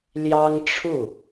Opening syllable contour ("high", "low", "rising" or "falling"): high